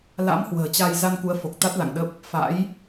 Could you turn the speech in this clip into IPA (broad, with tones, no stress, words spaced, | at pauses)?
la̰˧˥m hwə̤ː˨˩t͡ɕa˧j za˧nku˨˦ə̯fo˨˩k̚ t̪a˦˥t̚la̰˧˨ŋɗə˦˥p̚ | fa̰˧˥j